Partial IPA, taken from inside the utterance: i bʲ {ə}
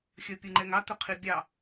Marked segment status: incorrect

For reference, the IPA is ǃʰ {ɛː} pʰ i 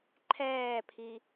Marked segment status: correct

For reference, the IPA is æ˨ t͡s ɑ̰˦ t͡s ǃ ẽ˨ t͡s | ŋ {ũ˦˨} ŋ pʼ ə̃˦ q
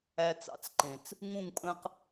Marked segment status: correct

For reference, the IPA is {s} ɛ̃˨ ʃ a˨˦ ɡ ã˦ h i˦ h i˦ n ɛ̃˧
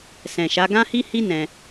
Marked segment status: correct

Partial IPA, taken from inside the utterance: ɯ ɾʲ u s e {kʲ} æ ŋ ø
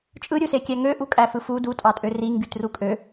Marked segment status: correct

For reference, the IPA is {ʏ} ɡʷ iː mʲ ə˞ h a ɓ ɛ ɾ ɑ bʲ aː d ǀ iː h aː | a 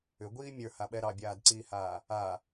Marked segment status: correct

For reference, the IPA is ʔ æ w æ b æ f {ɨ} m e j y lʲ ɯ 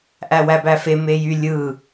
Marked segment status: incorrect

